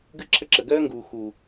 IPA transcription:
ɡɨ˦ǁʰə˦ ǁə˨ɡɜː˦ŋɡuː˨ xu˨

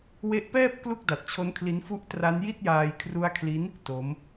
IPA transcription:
we˦˥ʔpɛː˥˩p̚ klu˥˩k̚da˨˩t̚t͡ɕʰo˦˥nkʰli˦˥n fu˦˥ʔtra˦˥nji˥˩t̚jaː˧j kʰru˦˥a̯kʰli˦˥n | to˦˥m

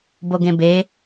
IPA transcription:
boɡẽbe

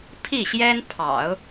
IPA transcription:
pʰi˥˩ɕjɛ˥n pʰɑ̰˨˩˦ʊ̯

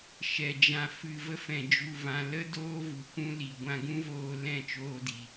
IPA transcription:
ʃɛ˨d͡ʒã˧fɨ˧ və˧fɛ̃˨d͡ʒu˨vã˨ lə˦ doː˦vu˨kʷũ˦li˨ ɡʷã˧ɡũ˦voː˧ lɛ̃˦˨ t͡ʃoː˧di˨

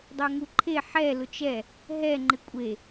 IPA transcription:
dˤoŋuǃʰe ħɛ lʊt͡ʃɛ | ɦɛ ŋ͡ǃɪkʷʼe

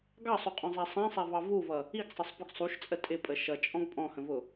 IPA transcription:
ɡɑsˤuqʼɔ̃zˤæ sˤæ̃sˤævɑ vuvʌ | iɡsˤʌsˤpʊɡ sˤuʃt͡sʼə tʼɪpʼə ʃʌt͡ʃʼɔ̃ɡ pʼɔ̃hə̃vʊ

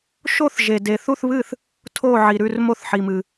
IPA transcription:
ʃo˥˨θ ʒe˨de˨ θu˥˨θβɨ˥˨θ | tʰo˥˨ ʕi˨ɾʉ˥˨r mo˥˨θħi˨mɨ˨

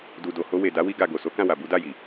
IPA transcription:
du˨do˨ho˧we˨ da˨˦wi˧ɡa˨ ɡo˨so˨˦kã˦˨wa˨ bu˨˦da˦˨ji˨

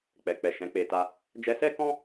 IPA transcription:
k͡pɛ˨k͡pɛ˨ ʃɛ̃˨˦k͡pe˧ta˧ | d͡ʒɛ˧sɛ˦kɔ̃˦

